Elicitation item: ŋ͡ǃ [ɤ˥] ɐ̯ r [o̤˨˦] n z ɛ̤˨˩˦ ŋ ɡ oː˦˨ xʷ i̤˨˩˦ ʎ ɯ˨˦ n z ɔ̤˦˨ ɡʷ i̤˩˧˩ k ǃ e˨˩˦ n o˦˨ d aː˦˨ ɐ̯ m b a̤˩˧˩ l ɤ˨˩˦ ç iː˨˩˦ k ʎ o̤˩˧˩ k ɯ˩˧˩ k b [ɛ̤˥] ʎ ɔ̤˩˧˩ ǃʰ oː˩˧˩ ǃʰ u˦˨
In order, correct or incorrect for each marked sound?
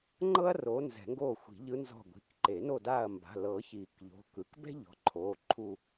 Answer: correct, incorrect, correct

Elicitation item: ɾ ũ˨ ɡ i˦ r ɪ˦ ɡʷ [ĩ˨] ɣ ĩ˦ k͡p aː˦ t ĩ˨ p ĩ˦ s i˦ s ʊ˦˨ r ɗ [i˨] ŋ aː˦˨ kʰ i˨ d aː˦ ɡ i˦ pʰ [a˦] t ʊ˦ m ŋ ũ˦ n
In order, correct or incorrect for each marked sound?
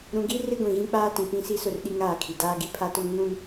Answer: correct, incorrect, correct

